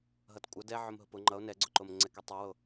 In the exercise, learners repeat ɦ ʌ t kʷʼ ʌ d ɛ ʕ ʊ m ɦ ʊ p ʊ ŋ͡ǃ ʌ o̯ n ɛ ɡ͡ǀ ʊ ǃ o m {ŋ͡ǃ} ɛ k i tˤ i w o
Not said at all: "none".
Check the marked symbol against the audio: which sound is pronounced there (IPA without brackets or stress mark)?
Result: ŋ͡ǀ